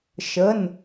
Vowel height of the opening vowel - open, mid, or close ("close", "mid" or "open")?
mid